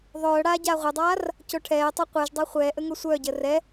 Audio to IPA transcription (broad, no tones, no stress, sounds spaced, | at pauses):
ðˤ œː ɽ aː ɟ aː ʁʷ ɛ dˤ aː r | c o ʈʰ ɛː tˤ ʊː qʷ e ʒ dˤ a χʷ ɛː ʔ ə ŋ o sʷ œː ɟ əː r ɛ